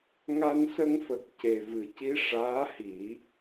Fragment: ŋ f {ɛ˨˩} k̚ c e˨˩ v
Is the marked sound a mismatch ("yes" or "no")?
yes